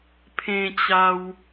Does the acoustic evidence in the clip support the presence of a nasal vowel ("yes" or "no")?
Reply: yes